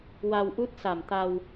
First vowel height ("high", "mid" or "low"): low